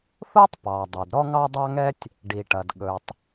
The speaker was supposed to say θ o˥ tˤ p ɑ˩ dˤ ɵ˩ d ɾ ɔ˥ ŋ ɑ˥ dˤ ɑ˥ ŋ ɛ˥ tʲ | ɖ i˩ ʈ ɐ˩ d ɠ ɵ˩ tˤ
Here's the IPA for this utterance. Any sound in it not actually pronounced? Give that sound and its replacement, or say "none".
none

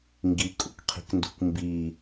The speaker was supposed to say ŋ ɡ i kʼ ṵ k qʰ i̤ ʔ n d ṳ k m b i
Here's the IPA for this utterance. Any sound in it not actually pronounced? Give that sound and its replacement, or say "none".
ʔ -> k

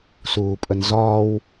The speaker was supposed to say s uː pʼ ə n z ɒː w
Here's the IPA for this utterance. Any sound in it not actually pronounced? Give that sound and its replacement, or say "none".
none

